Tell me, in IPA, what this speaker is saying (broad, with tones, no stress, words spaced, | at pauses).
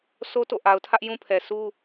so˦to̰˦˨ ʔa˨ʊ̯tʰä˦ʔ jũ˦pʰɛ˨sʰu˦